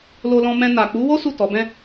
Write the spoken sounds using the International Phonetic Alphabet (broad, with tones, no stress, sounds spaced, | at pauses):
l o˧ l ɔ̃˧ m ɛ̃˧ n a˨ k͡p u˨˦ w o˦ s u˦˨ t ɔ˨˦ b ɛ̃˦